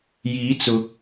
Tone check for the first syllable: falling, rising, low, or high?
rising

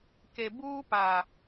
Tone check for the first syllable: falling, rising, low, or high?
low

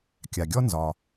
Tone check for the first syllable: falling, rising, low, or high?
low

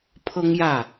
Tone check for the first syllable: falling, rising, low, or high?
high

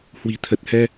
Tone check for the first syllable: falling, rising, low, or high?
low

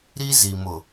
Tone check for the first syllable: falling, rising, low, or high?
high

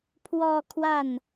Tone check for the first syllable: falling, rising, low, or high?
falling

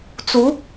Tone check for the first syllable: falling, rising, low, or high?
rising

